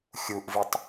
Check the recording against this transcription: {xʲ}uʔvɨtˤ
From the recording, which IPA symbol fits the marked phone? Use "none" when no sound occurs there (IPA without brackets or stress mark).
xʲ